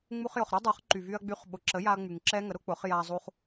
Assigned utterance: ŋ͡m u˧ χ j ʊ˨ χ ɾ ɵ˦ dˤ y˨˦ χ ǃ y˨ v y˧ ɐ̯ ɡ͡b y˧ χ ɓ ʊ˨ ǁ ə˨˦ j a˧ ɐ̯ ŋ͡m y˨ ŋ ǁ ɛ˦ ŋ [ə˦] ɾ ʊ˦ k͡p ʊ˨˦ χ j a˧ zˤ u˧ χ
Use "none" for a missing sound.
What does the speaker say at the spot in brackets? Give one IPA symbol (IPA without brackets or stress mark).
ə˨˦